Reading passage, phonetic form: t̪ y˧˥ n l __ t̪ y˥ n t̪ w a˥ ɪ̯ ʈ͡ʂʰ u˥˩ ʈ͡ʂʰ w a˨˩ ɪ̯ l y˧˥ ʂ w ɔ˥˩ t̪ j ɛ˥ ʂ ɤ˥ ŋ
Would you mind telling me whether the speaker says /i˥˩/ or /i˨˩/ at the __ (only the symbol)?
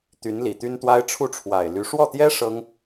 i˨˩